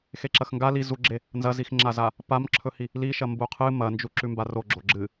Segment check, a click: present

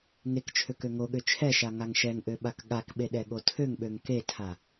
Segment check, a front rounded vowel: present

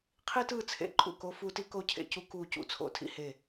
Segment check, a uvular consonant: present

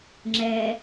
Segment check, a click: present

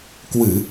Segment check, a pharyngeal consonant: absent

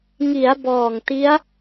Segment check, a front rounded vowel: absent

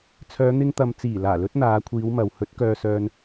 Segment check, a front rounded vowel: present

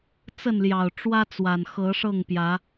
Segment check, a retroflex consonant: present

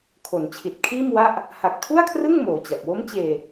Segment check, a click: absent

